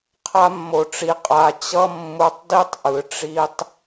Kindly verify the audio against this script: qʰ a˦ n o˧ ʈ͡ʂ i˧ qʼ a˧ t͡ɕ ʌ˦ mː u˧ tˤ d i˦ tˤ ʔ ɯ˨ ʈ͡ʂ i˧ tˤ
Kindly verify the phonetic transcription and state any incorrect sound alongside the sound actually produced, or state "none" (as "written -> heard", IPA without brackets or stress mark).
n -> mː